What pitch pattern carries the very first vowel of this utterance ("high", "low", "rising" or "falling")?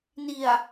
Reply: low